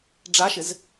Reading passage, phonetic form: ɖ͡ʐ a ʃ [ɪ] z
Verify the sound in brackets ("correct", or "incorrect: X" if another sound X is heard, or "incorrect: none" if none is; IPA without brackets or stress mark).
correct